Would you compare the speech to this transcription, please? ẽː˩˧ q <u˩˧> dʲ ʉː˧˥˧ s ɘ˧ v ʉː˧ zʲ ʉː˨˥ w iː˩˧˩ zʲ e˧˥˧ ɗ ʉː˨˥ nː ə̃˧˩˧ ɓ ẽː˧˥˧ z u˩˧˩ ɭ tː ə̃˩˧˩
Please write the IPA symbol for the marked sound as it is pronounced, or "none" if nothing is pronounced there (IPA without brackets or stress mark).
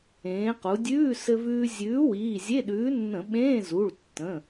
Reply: u˩˧